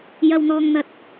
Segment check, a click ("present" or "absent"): absent